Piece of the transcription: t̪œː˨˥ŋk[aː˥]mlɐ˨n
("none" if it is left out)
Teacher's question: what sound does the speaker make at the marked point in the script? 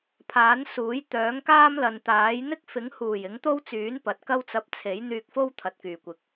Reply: aː˥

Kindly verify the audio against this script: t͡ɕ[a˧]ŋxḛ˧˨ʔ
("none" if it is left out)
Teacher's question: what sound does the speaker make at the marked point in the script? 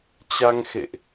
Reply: a˧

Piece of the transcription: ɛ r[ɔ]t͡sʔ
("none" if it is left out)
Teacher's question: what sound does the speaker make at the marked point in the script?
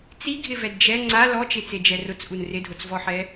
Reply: ʊ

